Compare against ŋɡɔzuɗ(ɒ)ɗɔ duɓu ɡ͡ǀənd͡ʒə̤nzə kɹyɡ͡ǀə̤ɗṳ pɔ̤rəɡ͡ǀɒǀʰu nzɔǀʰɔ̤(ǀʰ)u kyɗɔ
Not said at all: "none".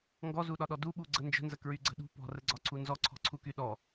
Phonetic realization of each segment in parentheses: ɒ, ǀʰ

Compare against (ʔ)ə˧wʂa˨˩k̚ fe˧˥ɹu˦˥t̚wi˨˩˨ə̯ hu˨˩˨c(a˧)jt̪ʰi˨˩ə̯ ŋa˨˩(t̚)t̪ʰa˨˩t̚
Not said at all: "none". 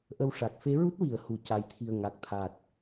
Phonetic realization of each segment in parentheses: ʔ, a˨˩˦, k̚

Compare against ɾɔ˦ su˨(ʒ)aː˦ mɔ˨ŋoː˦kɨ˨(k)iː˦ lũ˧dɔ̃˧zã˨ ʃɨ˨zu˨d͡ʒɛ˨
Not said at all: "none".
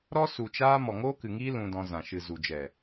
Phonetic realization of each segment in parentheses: t͡ʃ, ŋ

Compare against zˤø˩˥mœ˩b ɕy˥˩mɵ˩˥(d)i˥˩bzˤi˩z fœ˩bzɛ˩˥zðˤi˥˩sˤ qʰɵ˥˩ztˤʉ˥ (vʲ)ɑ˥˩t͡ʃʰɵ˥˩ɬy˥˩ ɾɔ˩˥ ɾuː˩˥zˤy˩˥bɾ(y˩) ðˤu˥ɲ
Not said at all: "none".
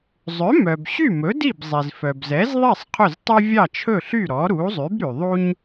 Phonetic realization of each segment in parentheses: d, vʲ, y˩

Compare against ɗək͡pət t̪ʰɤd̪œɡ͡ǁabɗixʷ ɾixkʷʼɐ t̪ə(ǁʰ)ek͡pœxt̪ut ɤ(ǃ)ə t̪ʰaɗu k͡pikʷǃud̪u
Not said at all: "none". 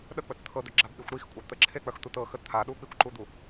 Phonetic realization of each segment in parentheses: ǁʰ, x

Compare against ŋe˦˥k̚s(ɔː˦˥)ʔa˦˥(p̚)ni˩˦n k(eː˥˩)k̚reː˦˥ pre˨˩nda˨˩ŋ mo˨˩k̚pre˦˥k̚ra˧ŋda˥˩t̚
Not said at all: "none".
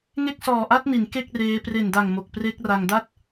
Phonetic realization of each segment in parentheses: ɔː˨˩, t̚, e˥˩

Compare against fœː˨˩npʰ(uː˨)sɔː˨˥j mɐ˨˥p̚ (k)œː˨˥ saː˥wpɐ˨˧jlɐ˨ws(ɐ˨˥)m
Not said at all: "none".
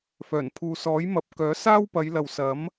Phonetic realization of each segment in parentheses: uː˨, k, ɐ˨˥

